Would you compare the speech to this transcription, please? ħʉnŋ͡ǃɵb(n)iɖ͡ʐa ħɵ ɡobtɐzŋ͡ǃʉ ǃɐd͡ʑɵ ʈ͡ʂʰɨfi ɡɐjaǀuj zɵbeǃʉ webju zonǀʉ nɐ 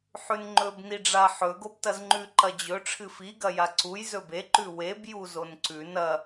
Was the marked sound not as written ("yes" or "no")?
no